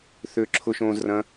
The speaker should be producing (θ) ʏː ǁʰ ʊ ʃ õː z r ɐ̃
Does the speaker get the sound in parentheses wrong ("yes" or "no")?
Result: no